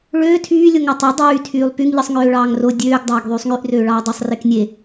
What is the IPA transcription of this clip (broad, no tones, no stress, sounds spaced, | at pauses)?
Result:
ɭ øː tʰ yː lʲ o ŋ ɑ tˤ e dˤ yː tʰ yː lˠ p y ŋ ʎ ɯ sˤ ŋ øː ɭ ɑː ŋ r o dʲ øː ɡ dˤ ɑː ɡ ðˤ yː sˤ ŋ y ʔ r øː ɭ ɑː dˤ o sˤ r e k nʲ e